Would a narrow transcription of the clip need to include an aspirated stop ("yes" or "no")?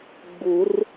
no